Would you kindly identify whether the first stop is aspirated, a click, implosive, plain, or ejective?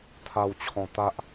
aspirated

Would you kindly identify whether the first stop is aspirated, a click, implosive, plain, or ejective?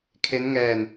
aspirated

